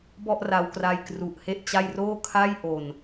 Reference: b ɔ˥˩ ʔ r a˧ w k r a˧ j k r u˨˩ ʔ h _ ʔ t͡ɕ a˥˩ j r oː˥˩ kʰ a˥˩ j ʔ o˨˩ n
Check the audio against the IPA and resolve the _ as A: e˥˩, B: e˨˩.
A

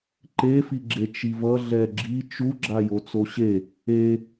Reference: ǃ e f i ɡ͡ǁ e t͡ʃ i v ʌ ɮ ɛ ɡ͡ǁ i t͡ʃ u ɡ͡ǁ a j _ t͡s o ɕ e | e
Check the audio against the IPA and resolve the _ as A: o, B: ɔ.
A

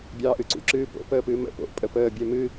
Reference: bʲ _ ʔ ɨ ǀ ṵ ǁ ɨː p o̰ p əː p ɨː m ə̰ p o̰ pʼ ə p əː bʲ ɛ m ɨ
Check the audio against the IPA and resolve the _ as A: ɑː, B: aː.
A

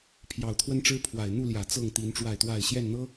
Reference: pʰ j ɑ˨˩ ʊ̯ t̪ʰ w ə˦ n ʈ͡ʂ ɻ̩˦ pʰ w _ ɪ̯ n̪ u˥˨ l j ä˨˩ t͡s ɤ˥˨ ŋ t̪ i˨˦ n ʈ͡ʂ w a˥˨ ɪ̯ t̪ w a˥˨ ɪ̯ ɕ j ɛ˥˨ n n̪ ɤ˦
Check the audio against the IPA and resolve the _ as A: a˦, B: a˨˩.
B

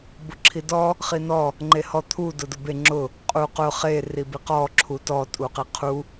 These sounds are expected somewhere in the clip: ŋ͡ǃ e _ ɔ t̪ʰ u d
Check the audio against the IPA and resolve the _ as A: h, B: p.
A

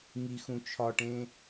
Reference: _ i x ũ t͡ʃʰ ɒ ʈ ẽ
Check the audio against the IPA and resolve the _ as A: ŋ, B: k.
A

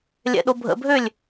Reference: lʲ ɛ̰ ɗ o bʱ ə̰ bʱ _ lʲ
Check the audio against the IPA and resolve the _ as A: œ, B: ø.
B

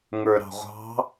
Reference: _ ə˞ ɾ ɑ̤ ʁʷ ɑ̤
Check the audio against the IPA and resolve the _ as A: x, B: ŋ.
B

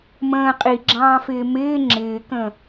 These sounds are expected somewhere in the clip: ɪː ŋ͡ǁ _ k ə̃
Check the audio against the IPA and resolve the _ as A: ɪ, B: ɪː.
B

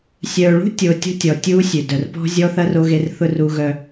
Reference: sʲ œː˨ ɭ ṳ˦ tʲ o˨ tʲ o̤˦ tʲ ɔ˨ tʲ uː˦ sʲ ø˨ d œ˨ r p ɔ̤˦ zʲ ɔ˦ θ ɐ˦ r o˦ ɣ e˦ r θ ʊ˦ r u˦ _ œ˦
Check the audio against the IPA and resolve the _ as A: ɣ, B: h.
A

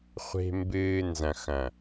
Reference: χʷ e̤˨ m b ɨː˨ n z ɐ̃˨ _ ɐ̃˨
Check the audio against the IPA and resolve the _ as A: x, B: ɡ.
A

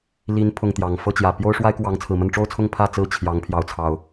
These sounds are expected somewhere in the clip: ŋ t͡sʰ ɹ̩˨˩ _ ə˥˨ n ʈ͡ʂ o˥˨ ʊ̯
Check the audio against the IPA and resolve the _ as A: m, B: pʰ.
A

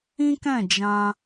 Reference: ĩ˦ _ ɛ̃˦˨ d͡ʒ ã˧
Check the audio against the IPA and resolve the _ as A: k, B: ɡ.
A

